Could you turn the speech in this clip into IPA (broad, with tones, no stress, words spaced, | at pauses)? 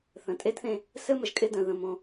θə̃˨tʼe˦dθẽ˦ | sɘ˦mə˨ʒkʼɪ˦ də̃˨ðə̃˦˨mõ˦